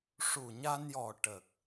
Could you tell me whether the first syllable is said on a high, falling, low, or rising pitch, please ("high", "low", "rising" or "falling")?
low